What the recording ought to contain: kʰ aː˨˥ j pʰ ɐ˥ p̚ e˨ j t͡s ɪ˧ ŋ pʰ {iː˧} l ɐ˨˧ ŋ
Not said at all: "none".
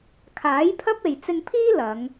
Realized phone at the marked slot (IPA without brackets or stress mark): iː˥